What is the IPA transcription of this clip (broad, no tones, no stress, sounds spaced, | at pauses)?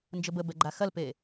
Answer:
n d͡ʒ ə b ə b ɛ ɡ͡ǃ a x ɐ l p e